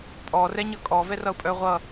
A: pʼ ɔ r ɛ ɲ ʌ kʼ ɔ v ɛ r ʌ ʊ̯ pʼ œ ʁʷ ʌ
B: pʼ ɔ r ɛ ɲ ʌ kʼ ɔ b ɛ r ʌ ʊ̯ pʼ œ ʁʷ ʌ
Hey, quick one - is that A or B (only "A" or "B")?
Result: A